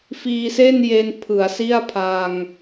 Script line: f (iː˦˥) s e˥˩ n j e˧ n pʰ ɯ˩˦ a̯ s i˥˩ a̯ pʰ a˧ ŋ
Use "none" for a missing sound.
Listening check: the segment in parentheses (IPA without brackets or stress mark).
iː˧